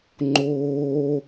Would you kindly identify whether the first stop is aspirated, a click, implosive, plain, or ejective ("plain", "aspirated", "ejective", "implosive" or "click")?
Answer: click